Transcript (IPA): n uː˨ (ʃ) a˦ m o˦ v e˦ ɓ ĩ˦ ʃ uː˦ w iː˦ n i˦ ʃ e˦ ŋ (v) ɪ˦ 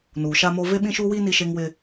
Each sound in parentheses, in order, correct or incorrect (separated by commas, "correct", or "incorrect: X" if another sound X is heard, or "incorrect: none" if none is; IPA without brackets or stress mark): correct, incorrect: w